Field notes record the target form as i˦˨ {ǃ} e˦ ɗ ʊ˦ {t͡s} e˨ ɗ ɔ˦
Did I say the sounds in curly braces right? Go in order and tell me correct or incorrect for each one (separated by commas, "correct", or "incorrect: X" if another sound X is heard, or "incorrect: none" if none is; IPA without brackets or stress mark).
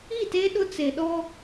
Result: incorrect: t, correct